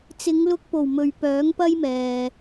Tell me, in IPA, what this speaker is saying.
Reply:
t͡sɪ˨˧ŋlʊ˧k̚po˨˩w mɵ˨ɥpœː˨˥ŋpɐ˥jmɛː˨

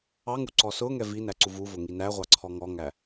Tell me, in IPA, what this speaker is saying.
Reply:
ɑ ŋuǀɔsʊŋɛ vi næǀuvuvʊ ŋinæʁʷɑ ǀʰɔŋɔŋæ

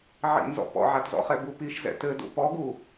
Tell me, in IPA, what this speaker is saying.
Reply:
ʕḭnzɔ̰ pɔ̰ʕatzɔ̰χɛ bupiʃzɛ̰ tɘ dṵpɔɡu

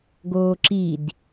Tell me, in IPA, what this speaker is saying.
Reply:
ɡoːǁid

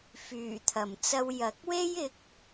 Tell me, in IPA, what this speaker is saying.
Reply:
fyː˨˩t̪ʰɐ˨˩mt͡sɐ˧w jɐ˨˥k̚we˥jɪ˨˥k̚

